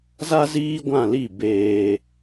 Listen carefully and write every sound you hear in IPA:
z a˦ z iː˦ ɡʷ ã˦˨ l i˦˨ b eː˧

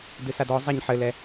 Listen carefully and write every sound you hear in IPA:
d ɨ s a d ɔ zˤ ɛ ɲ ħ ɘ l ɛ

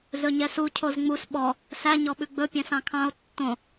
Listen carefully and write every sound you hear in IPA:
z ɵ ɲ ɛ s u cʰ o z ŋ͡m u s ɓ ɔ | s æ ɲ ɔ ɓ ʉ ɡ͡b ɵ pʲ ɛ̃ s ɑ̃ kʰ ɑ̃ o̯ tː õ

